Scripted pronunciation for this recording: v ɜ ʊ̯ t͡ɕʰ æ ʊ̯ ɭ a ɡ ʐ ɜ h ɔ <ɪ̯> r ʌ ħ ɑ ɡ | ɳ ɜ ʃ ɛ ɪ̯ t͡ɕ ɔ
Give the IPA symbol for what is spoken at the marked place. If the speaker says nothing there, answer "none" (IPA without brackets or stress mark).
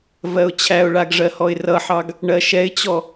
ɪ̯